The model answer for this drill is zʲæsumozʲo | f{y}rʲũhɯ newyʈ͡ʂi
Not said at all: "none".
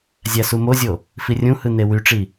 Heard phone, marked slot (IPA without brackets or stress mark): i